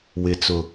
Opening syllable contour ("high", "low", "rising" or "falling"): low